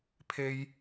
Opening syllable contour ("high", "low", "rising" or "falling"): high